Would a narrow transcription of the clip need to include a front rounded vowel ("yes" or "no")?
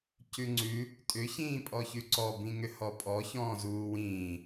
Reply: yes